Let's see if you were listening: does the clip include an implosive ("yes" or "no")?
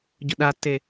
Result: yes